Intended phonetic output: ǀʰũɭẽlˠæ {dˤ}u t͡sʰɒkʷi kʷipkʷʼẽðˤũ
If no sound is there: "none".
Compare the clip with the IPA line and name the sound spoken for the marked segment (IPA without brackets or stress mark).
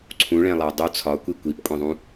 dˤ